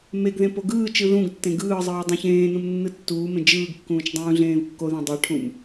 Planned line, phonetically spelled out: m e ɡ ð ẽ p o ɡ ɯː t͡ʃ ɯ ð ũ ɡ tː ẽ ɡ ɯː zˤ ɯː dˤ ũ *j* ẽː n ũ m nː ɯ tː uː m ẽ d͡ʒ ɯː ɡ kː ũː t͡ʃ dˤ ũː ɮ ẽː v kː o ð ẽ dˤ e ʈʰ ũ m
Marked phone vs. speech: incorrect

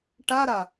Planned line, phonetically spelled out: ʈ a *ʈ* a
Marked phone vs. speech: incorrect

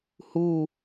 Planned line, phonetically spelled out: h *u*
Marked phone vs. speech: correct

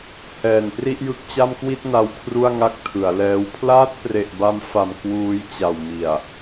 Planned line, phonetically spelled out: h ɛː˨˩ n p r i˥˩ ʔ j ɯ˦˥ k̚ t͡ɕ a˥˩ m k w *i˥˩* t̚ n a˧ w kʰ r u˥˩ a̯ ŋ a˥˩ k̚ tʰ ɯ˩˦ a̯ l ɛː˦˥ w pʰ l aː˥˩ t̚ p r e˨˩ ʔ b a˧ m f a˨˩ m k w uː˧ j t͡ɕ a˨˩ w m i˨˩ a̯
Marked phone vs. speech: correct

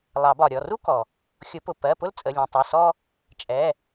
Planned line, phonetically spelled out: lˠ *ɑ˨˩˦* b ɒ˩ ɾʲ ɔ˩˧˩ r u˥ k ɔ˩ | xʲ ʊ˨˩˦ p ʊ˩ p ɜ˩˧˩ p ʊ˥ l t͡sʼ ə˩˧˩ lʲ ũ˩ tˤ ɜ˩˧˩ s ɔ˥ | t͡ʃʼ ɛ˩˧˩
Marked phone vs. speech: correct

